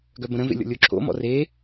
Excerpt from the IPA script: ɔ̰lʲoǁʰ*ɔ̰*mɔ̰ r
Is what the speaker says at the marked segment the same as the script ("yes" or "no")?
no